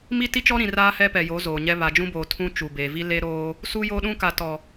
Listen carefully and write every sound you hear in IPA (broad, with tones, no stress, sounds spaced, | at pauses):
m i˦ t i˦ t͡ʃ ɔ˦ ɾ ĩ˨ r aː˦ h ɛ˦ p ɛ˨ j o˨˦ z oː˨ ɲ ɛ˦ β a˨ d͡ʒ ũ˦ b oː˨ tʰ ũ˦ t͡ʃ u˨ b eː˨ v i˦ l e˦ ɾ oː˦ | s u˦ j o˦ ɗ ũ˦ k a˨ t ɔ˨